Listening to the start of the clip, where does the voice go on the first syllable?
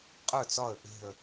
falling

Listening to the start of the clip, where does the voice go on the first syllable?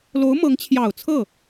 rising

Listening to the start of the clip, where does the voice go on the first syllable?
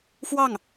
falling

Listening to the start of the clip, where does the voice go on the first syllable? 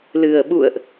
low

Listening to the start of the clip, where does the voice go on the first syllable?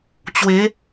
rising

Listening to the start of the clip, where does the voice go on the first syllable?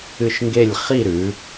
falling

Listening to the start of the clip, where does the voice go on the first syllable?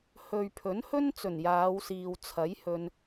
low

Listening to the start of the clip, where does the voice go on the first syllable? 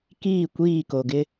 falling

